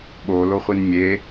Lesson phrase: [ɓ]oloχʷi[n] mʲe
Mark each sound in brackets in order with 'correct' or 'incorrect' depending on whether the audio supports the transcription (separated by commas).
correct, correct